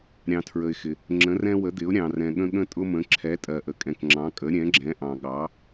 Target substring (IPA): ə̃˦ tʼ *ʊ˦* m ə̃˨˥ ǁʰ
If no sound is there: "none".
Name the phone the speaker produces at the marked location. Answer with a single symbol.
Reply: ʊ˦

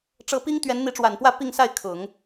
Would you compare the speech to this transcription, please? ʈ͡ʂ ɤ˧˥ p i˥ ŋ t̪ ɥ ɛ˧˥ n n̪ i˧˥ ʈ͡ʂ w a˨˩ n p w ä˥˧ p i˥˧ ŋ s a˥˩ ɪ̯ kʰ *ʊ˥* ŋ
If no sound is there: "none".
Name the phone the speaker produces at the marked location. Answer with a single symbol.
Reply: ʊ˨˩˦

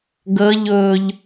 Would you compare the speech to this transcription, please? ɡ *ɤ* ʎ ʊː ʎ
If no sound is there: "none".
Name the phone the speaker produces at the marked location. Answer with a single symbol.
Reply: ɤ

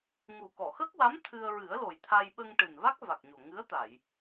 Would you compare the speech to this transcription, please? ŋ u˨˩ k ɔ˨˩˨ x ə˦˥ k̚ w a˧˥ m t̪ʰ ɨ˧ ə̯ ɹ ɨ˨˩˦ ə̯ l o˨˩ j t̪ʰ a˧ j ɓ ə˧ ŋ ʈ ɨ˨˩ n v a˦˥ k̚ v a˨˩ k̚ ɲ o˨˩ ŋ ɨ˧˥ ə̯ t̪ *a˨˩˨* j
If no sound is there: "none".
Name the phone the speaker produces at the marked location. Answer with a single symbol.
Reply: a˨˩˨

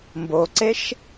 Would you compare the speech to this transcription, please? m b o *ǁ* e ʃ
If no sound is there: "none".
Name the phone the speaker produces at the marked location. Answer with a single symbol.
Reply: ǀ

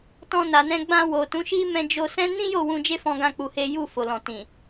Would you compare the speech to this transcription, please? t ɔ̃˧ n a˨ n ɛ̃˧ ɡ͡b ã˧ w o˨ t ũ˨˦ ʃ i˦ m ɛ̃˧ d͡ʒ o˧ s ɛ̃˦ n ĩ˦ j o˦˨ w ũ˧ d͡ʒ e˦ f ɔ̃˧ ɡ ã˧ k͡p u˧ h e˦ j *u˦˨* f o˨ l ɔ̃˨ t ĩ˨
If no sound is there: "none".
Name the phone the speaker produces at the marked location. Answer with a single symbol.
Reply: u˦˨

